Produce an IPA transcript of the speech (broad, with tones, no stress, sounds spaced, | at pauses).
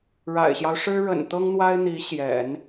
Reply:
ɻ a̰˨˩ ɪ̯ ɕ j ɑ˦ ʊ̯ ʂ ɻ̩˥ ɻ ə̰˨˩ n t̪ ɤ˥ ŋ n̪ w a˥ ɪ̯ n̪ i˧˥ ɕ j ɛ̰˨˩˦ n